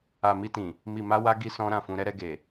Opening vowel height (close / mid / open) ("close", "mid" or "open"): open